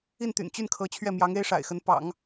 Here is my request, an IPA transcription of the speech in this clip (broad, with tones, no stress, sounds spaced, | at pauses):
i˥˩ n t̪ y̰˨˩ n t͡ɕ y˥˩ n kʰ ɤ˧˥ t͡ɕʰ ɥ ɛ˥˩ m j ɑ˧˥ ŋ e˥ ɪ̯ ʂ a̰˨˩ ɪ̯ x ə˧˥ n p ɑ̰˨˩˦ ŋ